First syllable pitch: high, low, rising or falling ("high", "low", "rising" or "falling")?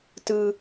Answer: high